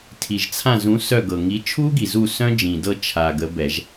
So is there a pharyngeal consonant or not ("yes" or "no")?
no